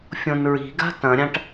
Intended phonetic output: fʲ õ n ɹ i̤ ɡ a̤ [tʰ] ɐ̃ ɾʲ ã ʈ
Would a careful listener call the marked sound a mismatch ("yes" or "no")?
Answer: yes